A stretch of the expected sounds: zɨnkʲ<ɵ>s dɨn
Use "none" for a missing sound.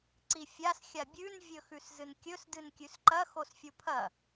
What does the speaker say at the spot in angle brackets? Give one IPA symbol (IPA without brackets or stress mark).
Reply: ɵ